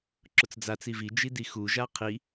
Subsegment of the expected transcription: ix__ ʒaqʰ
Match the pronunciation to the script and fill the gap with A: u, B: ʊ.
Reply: A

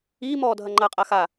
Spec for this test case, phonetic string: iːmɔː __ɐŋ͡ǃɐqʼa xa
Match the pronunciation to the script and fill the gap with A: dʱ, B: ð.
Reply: A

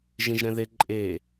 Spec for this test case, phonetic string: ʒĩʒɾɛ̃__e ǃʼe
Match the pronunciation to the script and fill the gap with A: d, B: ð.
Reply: B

